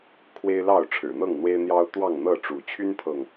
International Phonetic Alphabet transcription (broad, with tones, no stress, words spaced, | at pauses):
kʰwe˦ɪ̯lɑ˥˨ʊ̯ ʈ͡ʂʰɻ̩˨˩n̪ɤ˥˨ŋn̪we˦ɪ̯n̪jɑ˦ʊ̯ t̪wɑ˥˨ŋn̪ɤ˥˨ʈ͡ʂu˨˦ t͡ɕʰy˦npʰɤ˨ŋ